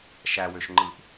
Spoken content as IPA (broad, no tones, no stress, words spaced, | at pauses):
ʃæwøʃŋ͡ǃɯʔ